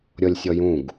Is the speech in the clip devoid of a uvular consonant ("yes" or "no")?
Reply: yes